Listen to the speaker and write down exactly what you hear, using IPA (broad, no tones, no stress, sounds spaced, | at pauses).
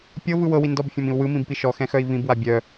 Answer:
pʲ ɤ v ɯ w ɤ w i n d ɔ b fʲ ɔ̃ m ĩ u̯ w ɯ m ĩ b p i ʃ ɔ x ɛ̃ x œ i̯ v ĩ b w a bʲ œ